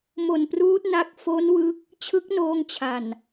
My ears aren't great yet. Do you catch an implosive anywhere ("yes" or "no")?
no